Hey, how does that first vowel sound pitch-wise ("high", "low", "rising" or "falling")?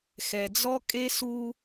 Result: low